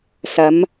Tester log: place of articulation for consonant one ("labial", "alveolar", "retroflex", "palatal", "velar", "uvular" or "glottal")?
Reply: alveolar